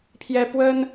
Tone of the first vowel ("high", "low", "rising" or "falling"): high